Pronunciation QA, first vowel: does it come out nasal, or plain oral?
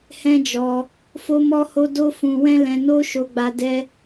nasal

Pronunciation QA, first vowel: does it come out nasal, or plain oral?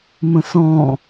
nasal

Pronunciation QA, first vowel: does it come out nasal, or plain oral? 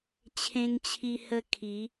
nasal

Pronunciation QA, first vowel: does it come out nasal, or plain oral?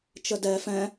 oral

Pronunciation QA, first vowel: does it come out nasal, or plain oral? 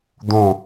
nasal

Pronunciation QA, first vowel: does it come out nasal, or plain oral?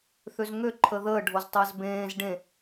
oral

